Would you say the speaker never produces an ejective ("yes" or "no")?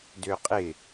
no